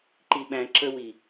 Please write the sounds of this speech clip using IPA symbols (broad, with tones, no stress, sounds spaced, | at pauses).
ǃ i˨ ɓ æ̃˨ ǁ ə˧ w i˨